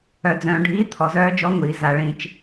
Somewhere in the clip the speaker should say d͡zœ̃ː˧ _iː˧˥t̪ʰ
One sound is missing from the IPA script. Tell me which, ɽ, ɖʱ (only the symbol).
ɖʱ